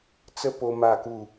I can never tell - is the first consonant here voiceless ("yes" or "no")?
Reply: yes